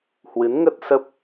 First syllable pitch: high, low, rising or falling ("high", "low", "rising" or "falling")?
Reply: rising